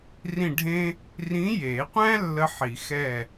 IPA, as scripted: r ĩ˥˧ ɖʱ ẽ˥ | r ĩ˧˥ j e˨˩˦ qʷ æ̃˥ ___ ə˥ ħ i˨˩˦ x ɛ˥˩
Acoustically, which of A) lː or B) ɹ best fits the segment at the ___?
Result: A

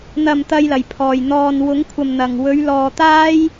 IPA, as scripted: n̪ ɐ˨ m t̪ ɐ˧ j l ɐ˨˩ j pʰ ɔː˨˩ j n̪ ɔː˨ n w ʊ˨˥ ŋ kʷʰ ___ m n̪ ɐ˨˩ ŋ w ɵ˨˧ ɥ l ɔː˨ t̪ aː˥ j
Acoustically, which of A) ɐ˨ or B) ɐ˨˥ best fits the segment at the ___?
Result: A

